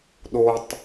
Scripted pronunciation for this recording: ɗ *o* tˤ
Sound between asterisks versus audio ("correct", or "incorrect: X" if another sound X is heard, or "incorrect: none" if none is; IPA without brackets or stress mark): correct